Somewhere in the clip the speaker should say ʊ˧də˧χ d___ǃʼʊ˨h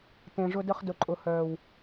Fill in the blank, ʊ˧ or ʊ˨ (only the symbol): ʊ˨